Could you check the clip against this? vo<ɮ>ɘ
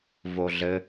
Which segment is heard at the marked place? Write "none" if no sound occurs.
ɮ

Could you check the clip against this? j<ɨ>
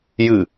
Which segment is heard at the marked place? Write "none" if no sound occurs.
ɨ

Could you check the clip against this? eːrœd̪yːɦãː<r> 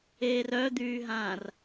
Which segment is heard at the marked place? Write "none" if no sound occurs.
r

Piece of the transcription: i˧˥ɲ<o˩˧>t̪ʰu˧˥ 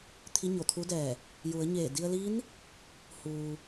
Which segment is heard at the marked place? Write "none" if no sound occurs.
o˧˩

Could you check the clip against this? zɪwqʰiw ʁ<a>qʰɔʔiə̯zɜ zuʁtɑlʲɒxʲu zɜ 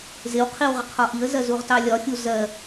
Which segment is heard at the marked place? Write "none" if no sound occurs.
ʌ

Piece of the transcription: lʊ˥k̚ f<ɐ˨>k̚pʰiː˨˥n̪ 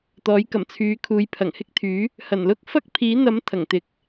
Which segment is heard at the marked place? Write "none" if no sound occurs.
ɐ˥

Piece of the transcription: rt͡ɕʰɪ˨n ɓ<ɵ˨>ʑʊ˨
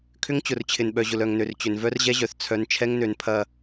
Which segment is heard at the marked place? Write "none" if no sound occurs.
œ˨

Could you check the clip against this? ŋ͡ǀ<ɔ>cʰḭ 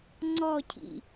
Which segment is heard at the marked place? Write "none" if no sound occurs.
ɔ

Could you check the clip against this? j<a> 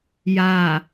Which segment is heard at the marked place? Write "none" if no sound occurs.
a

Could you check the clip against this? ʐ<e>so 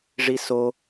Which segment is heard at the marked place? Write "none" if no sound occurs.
i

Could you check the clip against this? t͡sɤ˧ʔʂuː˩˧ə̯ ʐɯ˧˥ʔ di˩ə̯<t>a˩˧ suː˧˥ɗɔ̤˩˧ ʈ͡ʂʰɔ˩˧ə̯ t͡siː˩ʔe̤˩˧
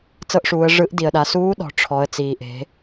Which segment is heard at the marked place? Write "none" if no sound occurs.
ɗ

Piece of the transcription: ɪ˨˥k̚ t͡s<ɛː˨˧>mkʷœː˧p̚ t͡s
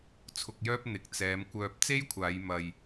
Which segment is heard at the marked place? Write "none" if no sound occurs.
ɛː˨˧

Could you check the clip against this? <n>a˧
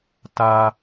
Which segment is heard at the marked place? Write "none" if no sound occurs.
t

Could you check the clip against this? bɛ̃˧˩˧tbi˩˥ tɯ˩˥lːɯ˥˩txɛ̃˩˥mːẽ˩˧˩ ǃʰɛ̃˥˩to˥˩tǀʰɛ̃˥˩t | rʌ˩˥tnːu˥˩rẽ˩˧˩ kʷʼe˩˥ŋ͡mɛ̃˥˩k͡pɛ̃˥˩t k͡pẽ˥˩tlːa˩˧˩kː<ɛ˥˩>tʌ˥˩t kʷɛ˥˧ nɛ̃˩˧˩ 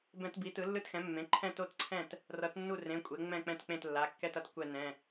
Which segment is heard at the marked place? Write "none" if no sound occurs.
ɛ˥˧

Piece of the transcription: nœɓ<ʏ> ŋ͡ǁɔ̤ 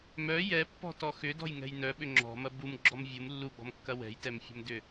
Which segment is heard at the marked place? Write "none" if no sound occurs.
ʏ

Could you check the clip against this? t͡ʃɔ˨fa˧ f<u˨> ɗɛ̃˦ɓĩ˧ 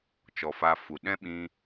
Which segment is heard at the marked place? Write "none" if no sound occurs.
u˨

